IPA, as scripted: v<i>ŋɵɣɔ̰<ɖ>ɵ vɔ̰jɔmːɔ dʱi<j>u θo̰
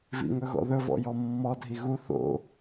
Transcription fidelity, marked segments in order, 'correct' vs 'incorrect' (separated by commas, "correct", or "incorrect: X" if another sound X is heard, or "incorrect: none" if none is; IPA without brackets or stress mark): incorrect: ḭ, incorrect: ð, incorrect: ɣ